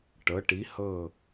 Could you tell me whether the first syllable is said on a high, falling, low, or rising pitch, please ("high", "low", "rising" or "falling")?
rising